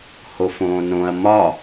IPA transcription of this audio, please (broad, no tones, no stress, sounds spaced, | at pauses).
h o f õː n õ ɐ̯ m ɒ